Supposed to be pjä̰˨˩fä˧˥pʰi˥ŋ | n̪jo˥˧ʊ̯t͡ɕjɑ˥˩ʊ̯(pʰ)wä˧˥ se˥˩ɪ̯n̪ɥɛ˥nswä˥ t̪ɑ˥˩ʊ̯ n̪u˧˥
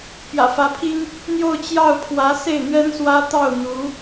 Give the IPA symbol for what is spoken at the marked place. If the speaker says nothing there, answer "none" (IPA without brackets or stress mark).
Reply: pʰ